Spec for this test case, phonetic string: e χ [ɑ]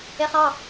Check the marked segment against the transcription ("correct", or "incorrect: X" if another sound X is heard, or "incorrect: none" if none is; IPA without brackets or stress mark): correct